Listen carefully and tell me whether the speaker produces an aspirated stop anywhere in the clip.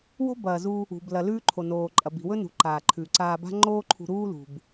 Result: yes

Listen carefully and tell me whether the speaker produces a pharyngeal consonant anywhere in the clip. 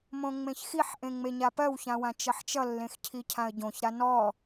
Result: yes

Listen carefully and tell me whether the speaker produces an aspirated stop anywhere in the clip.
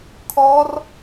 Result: yes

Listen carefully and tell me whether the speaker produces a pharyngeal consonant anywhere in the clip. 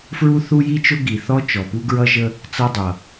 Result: no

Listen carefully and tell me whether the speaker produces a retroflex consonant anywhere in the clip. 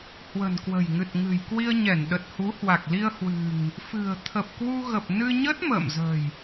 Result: no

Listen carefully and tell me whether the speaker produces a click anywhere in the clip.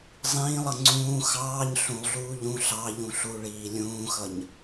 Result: yes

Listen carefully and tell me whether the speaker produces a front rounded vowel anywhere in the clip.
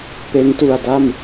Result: no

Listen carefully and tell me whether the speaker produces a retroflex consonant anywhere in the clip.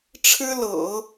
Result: yes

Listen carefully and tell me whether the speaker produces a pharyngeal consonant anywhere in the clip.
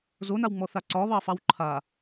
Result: no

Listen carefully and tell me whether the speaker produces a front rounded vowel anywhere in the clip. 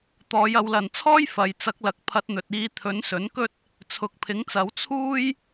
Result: no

